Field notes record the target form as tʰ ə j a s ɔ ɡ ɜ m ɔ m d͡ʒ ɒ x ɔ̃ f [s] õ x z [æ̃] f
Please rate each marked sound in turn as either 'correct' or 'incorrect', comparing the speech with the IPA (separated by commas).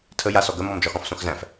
correct, correct